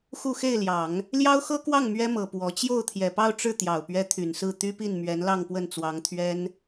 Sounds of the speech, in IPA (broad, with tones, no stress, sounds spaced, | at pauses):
x u˥˧ x e˥˩ ɪ̯ l j ɑ˨˩˦ ŋ | l j ɑ˥ ʊ̯ x ɤ˥ k w ɑ˥˩ ŋ m ɥ ɛ˥ m ɤ˨˩ p w ɔ˧˥ t͡ɕ j o˥˩ ʊ̯ t̪ʰ j ɛ˨˩ p ɑ˥˧ ʊ̯ ʈ͡ʂ ɻ̩˥˩ t̪ j ɑ˨˩ ʊ̯ p ɥ ɛ˧˥ t̪ʰ y˨˩ n s ɹ̩˥˩ t̪ y˥ p i˥˩ n m ɥ ɛ˧˥ n l ɑ˥˧ ŋ p w ə˥˩ n t͡s w ɑ˧˥ ŋ t̪ʰ ɥ ɛ˥ n